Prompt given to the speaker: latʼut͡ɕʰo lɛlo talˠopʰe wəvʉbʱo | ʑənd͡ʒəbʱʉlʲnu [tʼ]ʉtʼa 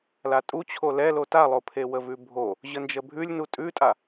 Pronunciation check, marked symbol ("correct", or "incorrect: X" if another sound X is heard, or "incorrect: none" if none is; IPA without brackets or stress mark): correct